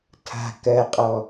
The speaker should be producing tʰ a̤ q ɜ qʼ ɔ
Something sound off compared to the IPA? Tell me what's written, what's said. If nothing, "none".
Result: q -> k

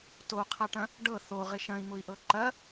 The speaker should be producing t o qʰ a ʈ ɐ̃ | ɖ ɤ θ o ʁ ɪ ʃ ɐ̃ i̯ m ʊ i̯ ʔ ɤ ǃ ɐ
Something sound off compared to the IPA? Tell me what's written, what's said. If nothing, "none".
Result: none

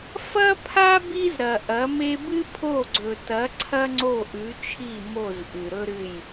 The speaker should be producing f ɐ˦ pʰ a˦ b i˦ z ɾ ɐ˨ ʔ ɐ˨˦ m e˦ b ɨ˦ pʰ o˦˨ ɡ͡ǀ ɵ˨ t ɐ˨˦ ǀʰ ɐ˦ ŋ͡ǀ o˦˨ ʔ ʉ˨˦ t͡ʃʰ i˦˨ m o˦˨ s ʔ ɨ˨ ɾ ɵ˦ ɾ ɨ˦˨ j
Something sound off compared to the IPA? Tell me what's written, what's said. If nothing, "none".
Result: s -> z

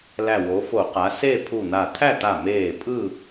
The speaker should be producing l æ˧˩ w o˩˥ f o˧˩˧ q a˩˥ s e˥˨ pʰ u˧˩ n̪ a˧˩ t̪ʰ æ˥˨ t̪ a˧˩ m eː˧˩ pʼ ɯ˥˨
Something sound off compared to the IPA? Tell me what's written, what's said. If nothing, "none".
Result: none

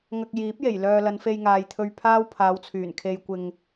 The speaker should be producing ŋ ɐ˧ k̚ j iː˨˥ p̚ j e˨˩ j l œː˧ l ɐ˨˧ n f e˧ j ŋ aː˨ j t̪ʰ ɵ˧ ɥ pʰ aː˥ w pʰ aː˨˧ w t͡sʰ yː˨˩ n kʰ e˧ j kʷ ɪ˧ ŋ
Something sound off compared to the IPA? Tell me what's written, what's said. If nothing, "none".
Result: none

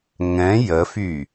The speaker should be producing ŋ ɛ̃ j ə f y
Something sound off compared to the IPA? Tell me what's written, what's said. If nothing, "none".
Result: none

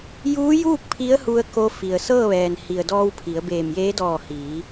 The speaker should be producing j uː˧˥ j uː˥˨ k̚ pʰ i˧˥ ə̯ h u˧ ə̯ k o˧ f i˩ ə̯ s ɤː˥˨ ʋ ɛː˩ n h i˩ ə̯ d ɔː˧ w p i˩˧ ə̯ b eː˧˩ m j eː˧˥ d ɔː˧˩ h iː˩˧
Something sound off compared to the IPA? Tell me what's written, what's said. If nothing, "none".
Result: p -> pʰ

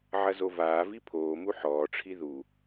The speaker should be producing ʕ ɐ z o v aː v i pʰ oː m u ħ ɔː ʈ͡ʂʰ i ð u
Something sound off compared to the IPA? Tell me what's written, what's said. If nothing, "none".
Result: none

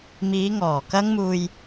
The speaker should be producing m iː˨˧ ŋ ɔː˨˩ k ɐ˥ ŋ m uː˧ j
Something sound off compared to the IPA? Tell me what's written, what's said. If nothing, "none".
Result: none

